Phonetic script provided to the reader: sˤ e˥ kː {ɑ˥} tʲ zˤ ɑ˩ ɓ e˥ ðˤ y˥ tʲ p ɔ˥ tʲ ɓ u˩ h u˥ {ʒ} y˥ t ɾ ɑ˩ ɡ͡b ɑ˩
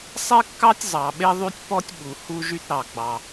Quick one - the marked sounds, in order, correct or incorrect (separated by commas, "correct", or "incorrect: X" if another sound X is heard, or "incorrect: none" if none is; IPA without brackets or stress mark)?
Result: correct, correct